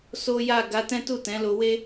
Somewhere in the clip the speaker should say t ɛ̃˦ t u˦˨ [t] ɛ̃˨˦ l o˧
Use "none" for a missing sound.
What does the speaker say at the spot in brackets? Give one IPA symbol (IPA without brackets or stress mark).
t